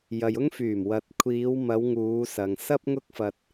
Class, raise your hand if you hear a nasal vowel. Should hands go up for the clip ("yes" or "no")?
no